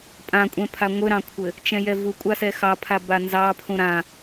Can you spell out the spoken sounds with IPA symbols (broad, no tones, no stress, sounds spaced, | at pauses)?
pʼ ã kʷʼ ɛ̃ pʰ a ŋʷ ɘ ɾ ɑ̃ kʷʰ ɘ | t͡ʃ ɛ̃ j ɛ v u kʷʼ a s ɛ x ɑ pʰ a b a n z ɑ pʰ ũ ɾ ã